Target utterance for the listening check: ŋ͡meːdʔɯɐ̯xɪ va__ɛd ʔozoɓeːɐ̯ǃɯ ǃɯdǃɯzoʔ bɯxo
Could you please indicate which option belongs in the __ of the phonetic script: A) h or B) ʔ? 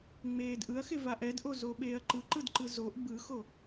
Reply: B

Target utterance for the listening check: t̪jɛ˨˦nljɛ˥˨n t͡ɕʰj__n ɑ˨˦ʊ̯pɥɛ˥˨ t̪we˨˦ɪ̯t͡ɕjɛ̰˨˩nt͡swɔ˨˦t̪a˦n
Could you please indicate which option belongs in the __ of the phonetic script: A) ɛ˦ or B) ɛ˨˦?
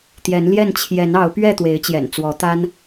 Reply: B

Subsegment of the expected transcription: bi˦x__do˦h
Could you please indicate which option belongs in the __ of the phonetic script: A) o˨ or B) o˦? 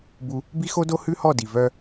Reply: B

